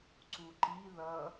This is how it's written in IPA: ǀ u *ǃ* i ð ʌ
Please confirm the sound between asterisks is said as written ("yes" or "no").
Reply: yes